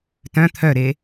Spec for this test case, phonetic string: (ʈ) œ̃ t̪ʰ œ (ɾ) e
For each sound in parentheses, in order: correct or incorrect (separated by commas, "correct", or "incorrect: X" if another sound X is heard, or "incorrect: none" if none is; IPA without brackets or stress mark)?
incorrect: t, correct